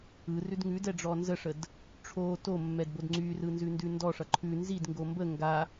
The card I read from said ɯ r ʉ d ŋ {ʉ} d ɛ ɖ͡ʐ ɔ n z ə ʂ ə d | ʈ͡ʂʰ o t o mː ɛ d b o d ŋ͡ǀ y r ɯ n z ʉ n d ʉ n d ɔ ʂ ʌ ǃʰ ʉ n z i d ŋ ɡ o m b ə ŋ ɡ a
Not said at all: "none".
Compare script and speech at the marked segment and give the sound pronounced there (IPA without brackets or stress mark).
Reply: ʉ